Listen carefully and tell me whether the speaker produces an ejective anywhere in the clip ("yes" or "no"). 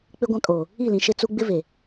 yes